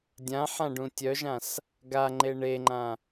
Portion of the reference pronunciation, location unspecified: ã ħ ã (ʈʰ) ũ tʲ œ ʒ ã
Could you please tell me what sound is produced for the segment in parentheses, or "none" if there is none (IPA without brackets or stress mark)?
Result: ɖ